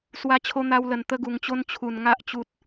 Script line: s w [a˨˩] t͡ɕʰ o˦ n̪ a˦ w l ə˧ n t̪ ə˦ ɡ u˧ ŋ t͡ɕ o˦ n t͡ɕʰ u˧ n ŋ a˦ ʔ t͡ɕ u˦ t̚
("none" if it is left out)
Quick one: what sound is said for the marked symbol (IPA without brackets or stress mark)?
a˦